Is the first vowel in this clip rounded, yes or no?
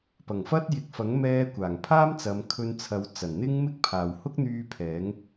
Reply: no